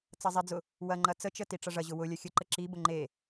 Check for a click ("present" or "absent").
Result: present